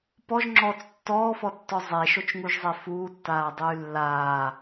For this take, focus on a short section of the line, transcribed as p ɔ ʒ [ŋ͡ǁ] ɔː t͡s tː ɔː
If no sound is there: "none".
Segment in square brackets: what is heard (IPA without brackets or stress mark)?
ŋ͡ǁ